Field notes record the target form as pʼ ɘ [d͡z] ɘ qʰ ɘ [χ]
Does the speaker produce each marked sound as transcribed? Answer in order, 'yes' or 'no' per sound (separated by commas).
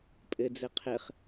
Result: yes, yes